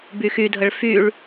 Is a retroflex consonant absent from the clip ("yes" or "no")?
no